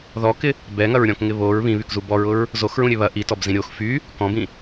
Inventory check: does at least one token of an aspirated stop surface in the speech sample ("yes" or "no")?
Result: no